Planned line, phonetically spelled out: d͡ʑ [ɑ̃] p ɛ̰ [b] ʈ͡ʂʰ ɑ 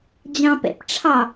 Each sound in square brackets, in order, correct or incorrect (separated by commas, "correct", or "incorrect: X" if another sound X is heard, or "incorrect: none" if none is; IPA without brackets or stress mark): correct, incorrect: p